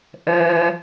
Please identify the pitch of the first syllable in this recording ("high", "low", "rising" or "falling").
low